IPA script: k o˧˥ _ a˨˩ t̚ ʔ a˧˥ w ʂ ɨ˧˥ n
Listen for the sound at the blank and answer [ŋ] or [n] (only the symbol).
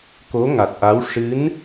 ŋ